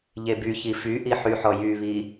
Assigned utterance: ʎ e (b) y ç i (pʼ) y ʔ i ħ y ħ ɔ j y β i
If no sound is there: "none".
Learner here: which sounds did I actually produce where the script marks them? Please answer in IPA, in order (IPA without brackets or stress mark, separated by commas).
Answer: b, f